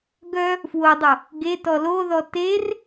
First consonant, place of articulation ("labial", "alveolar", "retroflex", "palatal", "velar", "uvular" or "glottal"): velar